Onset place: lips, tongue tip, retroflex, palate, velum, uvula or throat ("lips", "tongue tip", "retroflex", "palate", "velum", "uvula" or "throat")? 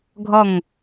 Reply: velum